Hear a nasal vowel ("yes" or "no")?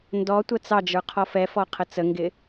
no